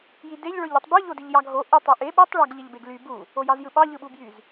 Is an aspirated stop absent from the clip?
yes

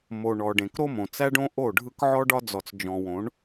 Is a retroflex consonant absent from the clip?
no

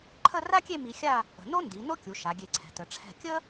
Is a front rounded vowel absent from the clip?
yes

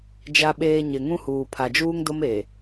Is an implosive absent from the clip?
no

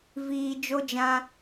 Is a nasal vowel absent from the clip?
no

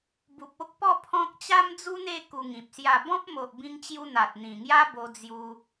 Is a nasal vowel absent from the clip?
no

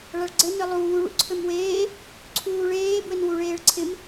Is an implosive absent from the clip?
yes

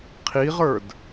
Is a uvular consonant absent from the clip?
no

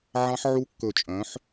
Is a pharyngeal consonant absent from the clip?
no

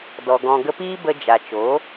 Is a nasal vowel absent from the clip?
no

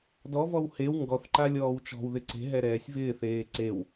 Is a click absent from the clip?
no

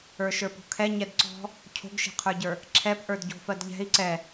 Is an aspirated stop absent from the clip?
no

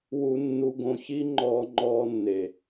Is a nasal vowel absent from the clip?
no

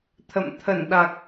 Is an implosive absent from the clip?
no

